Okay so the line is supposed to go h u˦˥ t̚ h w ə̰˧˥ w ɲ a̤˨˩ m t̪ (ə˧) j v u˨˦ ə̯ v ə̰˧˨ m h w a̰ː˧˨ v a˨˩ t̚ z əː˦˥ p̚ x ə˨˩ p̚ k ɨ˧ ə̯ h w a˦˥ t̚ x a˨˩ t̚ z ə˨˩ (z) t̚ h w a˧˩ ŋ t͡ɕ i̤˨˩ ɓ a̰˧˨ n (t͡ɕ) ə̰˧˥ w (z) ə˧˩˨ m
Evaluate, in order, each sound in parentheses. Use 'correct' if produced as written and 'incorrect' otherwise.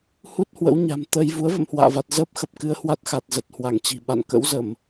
correct, incorrect: none, incorrect: k, correct

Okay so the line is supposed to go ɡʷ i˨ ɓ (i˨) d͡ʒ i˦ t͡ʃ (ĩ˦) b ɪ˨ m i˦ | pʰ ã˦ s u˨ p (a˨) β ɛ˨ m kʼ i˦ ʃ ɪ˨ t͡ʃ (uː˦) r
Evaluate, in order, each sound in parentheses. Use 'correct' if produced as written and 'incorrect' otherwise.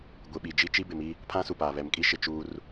correct, incorrect: i˦, incorrect: aː˨, correct

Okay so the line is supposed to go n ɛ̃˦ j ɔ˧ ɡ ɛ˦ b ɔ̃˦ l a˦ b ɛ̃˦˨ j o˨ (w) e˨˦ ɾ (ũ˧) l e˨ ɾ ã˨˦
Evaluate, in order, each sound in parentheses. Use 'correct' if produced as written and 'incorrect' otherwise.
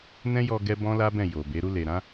incorrect: b, incorrect: u˧

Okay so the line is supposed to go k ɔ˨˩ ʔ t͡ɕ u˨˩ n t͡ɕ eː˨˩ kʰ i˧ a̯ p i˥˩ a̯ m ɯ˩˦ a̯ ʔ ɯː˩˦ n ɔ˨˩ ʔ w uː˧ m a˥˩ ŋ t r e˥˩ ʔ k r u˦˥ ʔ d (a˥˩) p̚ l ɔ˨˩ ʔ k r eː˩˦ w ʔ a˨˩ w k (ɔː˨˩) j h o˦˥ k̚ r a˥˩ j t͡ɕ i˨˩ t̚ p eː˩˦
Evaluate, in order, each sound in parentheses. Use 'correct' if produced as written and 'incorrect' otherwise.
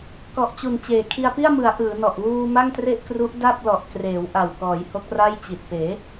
correct, incorrect: ɔː˩˦

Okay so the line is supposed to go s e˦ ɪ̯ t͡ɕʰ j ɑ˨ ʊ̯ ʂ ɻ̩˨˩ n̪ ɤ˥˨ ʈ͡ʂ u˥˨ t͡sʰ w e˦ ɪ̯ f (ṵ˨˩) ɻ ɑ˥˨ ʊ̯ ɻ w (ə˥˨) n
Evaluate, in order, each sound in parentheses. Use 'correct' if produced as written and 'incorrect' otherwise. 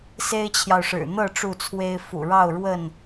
correct, correct

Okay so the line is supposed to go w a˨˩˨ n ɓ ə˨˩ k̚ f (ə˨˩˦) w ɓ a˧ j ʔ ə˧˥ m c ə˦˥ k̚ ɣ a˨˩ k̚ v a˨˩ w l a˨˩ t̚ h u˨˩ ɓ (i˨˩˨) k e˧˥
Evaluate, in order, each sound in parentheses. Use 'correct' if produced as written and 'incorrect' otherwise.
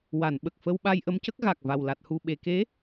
incorrect: ə˧, incorrect: e˨˩˨

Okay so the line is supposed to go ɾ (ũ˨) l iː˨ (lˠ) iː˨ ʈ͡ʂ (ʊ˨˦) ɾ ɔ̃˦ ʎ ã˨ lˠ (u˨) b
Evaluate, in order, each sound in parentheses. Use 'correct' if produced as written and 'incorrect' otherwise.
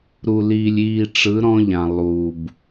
incorrect: u˨, incorrect: lʲ, incorrect: ɯ˨˦, incorrect: uː˨

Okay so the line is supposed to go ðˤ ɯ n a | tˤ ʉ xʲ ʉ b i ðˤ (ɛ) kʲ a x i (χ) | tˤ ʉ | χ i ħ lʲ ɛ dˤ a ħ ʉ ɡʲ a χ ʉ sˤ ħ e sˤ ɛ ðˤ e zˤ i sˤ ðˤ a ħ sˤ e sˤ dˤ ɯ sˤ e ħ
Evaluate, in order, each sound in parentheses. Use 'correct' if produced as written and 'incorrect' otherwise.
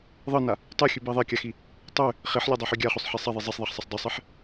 correct, incorrect: none

